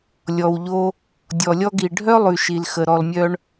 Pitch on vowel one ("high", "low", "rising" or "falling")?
low